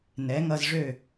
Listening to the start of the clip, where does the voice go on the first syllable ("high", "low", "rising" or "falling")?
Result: rising